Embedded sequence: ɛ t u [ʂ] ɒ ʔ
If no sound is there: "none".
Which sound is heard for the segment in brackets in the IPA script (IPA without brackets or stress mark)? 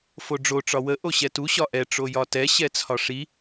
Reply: ɕ